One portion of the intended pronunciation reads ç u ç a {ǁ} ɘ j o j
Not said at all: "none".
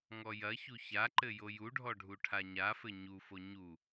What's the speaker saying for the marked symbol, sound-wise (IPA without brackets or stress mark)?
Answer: ǃ